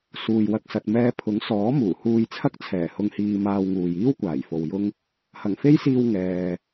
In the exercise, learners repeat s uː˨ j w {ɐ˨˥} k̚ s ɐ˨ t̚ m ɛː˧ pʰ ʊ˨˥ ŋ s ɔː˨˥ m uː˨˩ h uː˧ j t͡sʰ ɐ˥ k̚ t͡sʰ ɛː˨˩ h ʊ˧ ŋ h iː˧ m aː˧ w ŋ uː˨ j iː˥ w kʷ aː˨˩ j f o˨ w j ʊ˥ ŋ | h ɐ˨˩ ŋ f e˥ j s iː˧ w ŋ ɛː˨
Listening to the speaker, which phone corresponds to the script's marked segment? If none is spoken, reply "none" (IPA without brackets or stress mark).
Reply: ɐ˧